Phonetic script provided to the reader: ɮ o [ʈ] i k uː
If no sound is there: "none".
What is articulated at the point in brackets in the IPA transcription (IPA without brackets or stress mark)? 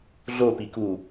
p